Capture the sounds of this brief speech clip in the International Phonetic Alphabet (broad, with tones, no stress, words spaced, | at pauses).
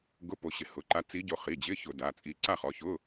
ɡʊ˧˥˧ po˧ɕɪ˧˩˧ hʊ˩˧˩ǃa˧˥ t͡si˧˥ɟo˧ χi˩˧˩d͡ʑɪ˧˥˧ çʊ˧˩˧ da˩˧˩t͡sʼi˧ ǀa˥˨χɔ˩˧˩çʊ˧˥˧